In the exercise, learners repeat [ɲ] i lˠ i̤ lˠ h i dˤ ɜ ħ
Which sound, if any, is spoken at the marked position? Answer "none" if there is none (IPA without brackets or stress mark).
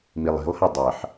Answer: m